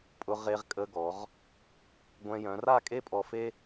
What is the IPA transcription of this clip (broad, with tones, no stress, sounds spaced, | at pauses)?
pʼ ʊ˧ ʁ e˧ ʁ kʼ ə˧ ɡ ɔ˩˧ ʁ | ɡʷ ɛ̃˧ j œ̃˩˧ r a˥˧ kʼ e˥ pʼ ɔ˧ f e˥